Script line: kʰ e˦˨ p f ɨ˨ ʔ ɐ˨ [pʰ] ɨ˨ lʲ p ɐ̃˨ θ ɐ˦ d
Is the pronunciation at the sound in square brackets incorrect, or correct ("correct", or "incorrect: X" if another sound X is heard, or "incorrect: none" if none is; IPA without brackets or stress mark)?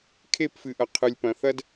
incorrect: qʰ